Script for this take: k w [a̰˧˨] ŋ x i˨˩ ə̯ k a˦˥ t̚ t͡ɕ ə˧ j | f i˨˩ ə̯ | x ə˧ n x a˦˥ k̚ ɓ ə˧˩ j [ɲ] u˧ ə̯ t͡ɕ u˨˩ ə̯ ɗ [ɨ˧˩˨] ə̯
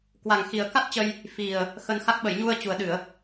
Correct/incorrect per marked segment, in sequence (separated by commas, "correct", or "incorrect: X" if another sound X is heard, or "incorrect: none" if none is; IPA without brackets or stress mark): incorrect: a˨˩, correct, correct